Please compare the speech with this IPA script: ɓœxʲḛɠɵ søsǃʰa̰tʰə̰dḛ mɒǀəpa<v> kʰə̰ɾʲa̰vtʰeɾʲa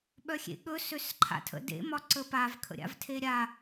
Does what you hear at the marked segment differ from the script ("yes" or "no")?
no